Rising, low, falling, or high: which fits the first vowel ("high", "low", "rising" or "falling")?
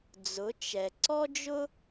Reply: rising